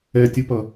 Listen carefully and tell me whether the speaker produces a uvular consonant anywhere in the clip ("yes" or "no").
no